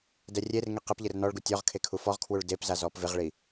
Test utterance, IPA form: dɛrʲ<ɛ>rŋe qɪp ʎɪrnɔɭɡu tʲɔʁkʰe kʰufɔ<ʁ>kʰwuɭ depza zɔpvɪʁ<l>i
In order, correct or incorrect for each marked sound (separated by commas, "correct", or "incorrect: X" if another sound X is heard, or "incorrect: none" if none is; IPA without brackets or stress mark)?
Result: incorrect: e, correct, incorrect: ɭ